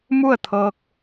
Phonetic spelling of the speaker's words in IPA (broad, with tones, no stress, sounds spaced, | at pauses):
m u˥˨ ə̯ t̪ʰ ɤː˧ k̚